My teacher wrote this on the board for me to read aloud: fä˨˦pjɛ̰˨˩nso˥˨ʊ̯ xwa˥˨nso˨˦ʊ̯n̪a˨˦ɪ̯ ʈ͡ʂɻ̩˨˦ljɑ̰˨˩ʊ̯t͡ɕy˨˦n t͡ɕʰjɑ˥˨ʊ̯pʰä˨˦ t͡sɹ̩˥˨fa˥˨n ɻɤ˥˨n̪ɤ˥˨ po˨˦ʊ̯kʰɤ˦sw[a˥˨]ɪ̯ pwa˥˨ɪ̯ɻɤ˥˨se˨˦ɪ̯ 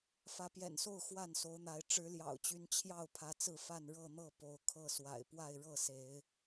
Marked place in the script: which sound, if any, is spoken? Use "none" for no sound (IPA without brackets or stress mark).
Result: a̰˨˩